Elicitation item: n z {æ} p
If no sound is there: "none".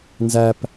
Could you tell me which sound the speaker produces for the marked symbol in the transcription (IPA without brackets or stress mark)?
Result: æ